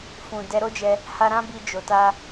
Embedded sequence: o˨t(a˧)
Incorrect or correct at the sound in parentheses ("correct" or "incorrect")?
correct